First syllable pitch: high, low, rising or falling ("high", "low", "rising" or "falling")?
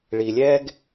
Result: low